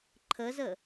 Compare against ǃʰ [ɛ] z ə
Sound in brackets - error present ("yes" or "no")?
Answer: yes